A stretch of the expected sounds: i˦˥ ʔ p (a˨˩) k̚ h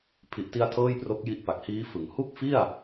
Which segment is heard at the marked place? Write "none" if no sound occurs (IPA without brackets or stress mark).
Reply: a˨˩